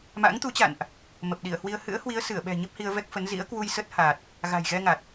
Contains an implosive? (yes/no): yes